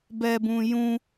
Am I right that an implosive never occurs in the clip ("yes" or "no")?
yes